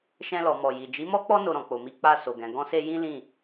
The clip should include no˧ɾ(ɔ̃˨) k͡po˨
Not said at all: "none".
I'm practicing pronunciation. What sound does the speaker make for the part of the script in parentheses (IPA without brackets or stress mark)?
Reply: ɔ̃˨